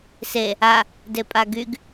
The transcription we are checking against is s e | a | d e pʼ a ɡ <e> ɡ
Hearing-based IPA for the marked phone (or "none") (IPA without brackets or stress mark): y